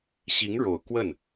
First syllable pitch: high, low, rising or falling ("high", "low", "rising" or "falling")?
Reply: rising